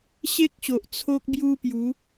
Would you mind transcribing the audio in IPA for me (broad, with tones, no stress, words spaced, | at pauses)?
ɕe˦k̚ɕo˨ʔ t͡sʰo˦k̚bju˦pju˨˦